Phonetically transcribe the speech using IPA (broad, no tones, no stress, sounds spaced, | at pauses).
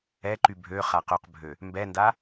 ɛ ǃ y bʱ ø χ a q ø q bʱ ø | m b ɛ n d a